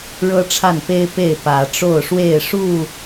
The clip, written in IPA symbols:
ɻ ɤ˦ ʈ͡ʂʰ a˥˨ n p e˦ ɪ̯ p e˥˨ ɪ̯ p ä˨˦ ʈ͡ʂ o˥˨ ʊ̯ ʂ w e˥˨ ɪ̯ ʂ u˥˨

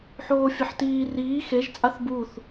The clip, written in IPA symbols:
ħ oː fʲ ɐ ħ t iː r iː x e ʒ t͡sʼ a θ b u θ

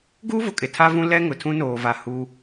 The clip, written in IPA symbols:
ɡ uː˦ v ʊ˨ kʼ ɪ˨ tʰ a˦ v ũ˦ l ɛ˦ ŋ ʊ˨ tʰ ũ˦ n oː˨ v a˨ h uː˦

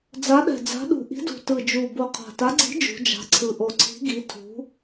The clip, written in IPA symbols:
d͡z a˨˦ ɗ ɛ̤˨˩ d͡z a̤˨˦ ɗ ṳ˨˩ ʔ i̤˨˦ d ṳ˨˩ t ɯ˨˩ d͡ʒ u˨˩ b o˨˩ qʰ a̤˨˩ t a˨˦ ɡ͡ǀ i̤˨˦ d͡ʒ ṳ˨˦ d͡ʒ a̤˨˦ ǀʰ ɯ˨˩ ʔ o˨˩ ǀʰ i̤˨˦ ɡ i˨˦ tʰ ṳ˨˦

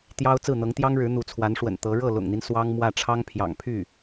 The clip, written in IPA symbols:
t̪ j ɑ˥ ʊ̯ t͡s ɹ̩˥˩ n̪ ɤ˧˥ ŋ t̪ j ɑ˥ ŋ ɻ ɻ̩˧˥ n̪ u˧˥ t͡sʰ w a˧˥ n ʂ w ə̰˨˩ n t̪ ɤ˧˥ ɻ ɤ˥˩ l ʊ̰˨˩ ŋ n̪ i˦ n s w ɑ˥ ŋ m w ä˥˩ ʈ͡ʂʰ ɑ˥ ŋ pʰ j ɑ̰˨˩ ŋ pʰ y˥˩

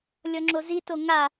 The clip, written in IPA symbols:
lʲ ɔ ŋ͡ǁ o z i t o ŋ a

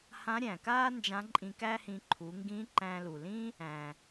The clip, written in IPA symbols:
h ã˧˥ ɾʲ æ̃˩ k aː˥ n d͡ʒ ã˧˥ ǃʼ ĩ˧ k æ˥ h ĩ˧ ǃʰ u˩˧ ŋ ɡ ĩ˧˥ ǃ æ̃˧ l u˩ l ĩ˥ | æ̃˩

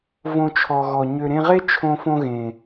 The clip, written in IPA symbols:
v õ˧ t͡ʃʰ ɔ˨ ɣ ɔ˨ ɲ ø˨ ɾ ẽ˧ ʁ e˦ t͡ʃʰ õ˧ f õ˧ ɣ ẽ˨

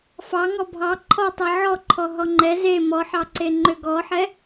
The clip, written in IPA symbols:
f ɑ ŋ ɔ bʱ ɑ ǃʰ ɔ tˤ ɛ ʕ ɔ ǃʰ ɔ ɦ ɔ ŋ͡ǃ ɛ z e m ɔ ħ ɑ ǀ e ŋ͡ǃ ø ɡ ɔ ħ ɛ

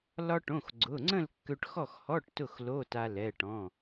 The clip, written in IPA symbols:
l ɒ˧ ʈ õ˩˧˩ x ɡ͡ǀ ʊ˩˧˩ ŋ͡ǀ ə̃˥˨ l kː ø˧ ʈ x ɔ˥˨ x h ɔ˧˥˧ ʈ t ʊ˥˨ x l o˧˥˧ t a˧ l ɛ˩˧˩ ʈ ɔ̃˩˧˩

